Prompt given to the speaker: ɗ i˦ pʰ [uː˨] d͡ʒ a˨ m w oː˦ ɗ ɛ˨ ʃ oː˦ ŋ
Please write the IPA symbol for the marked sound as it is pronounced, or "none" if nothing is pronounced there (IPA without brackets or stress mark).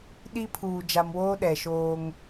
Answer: uː˨